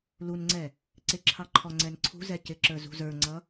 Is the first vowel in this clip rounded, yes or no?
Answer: yes